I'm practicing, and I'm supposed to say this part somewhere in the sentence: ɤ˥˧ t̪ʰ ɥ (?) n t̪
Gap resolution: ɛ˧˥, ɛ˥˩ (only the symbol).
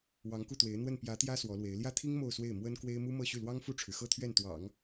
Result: ɛ˥˩